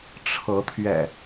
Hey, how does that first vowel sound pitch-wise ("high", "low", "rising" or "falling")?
rising